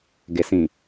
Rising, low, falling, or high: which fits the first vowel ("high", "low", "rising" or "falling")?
low